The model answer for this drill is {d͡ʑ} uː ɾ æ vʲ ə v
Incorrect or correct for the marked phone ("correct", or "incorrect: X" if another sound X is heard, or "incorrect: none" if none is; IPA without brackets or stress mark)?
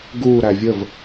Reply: incorrect: ɡ